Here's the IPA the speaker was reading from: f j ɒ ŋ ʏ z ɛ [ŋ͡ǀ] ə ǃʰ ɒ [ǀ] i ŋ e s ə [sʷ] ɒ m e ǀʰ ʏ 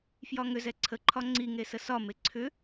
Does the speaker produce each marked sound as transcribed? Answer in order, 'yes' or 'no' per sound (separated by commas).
no, no, no